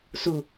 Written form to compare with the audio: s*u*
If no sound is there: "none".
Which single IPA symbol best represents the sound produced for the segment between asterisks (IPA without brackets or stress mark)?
u